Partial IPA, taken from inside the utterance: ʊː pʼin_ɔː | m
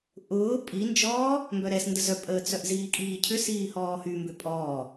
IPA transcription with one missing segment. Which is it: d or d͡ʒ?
d͡ʒ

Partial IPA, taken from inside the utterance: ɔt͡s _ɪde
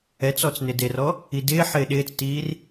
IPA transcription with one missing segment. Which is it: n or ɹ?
n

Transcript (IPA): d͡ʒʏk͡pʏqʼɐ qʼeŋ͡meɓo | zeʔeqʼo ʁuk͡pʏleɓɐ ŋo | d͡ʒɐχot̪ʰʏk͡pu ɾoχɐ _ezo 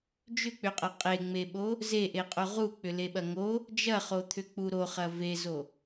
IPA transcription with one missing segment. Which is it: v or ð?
v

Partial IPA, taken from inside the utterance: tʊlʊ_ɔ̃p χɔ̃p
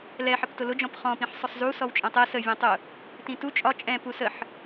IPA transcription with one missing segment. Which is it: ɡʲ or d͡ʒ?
d͡ʒ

